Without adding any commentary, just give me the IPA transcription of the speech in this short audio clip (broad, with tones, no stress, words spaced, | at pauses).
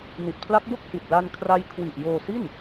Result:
ni˨˩t̚pʰla˦˥k̚bo˥˩k̚ hi˨˩t̚la˧n kʰra˦˥jkʰwi˨˩ʔ joː˧si˥˩n